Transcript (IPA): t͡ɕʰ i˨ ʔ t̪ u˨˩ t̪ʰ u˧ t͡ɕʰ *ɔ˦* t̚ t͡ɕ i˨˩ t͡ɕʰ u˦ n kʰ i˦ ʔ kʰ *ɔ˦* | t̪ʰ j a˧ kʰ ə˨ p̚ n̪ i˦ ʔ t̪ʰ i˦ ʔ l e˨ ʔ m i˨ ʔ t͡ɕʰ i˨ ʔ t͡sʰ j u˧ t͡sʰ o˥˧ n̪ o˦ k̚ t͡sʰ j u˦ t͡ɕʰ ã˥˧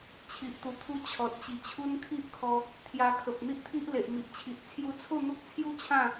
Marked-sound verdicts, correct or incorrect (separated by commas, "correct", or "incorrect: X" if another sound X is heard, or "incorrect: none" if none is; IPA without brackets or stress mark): incorrect: ɔ˨, incorrect: ɔ˧